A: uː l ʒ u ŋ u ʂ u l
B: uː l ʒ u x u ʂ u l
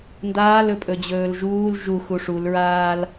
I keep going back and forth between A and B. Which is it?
B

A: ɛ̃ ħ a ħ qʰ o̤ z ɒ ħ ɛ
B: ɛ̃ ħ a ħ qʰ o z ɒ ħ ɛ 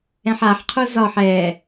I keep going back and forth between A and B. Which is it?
B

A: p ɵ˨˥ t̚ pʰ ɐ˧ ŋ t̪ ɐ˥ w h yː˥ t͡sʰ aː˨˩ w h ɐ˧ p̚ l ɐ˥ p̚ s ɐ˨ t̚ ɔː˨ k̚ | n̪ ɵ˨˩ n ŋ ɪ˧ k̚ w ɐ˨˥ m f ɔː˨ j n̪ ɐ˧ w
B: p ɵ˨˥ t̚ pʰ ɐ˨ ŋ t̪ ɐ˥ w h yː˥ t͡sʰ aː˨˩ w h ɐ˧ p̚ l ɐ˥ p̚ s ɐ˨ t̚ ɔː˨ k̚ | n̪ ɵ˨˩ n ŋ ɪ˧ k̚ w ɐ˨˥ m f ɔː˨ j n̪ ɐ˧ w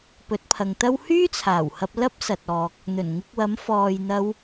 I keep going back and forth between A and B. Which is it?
B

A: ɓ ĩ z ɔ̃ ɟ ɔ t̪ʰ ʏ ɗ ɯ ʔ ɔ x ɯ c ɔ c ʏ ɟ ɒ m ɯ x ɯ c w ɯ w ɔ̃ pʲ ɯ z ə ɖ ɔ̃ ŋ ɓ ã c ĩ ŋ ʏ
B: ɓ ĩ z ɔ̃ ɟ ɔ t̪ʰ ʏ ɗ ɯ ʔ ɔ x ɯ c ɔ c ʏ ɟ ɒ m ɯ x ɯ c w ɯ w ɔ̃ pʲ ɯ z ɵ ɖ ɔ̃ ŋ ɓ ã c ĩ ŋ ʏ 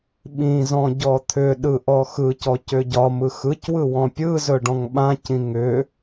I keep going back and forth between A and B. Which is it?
B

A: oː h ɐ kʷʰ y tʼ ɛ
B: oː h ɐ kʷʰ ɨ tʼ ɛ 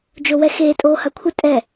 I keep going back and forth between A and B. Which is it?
B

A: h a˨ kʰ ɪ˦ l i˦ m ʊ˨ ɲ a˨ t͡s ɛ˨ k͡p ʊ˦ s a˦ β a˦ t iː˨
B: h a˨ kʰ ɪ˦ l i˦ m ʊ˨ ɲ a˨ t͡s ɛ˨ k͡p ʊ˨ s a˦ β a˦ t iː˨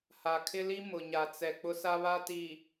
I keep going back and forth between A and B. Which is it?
A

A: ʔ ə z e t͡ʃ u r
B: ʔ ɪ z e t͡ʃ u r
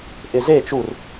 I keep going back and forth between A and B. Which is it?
B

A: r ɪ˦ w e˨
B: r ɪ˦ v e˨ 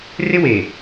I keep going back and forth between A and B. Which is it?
A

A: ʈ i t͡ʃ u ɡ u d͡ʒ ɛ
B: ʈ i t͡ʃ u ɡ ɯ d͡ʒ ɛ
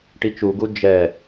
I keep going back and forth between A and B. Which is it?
A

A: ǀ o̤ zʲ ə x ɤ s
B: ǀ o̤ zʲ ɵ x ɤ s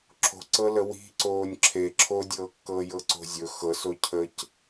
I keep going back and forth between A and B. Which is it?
B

